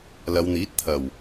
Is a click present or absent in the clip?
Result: absent